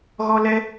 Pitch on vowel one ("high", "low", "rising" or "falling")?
high